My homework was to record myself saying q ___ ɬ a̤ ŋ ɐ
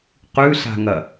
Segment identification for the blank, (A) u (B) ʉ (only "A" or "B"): B